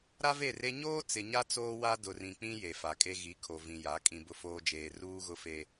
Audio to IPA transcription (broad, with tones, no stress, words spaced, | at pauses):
ɾa˦ve˦˨re˦ ɲoː˦ t͡sɪ˨ɲa˦ t͡soː˦wa˦ dʊ˨rĩ˨ k͡pĩ˦ je˨fa˨kʼe˦ ɣi˨˦kʰo˨ vĩ˨ja˨˦kʼĩ˨ bʊ˦foː˦ d͡ʒeː˨ ruː˦ɣʊ˦fe˦